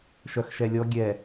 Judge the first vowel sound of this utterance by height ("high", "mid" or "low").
mid